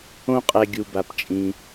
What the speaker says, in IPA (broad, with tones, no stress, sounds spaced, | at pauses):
õ˦ qʼ ɛ˨ ɡʲ u˩ b a˩ p t͡ʃʼ ĩ˩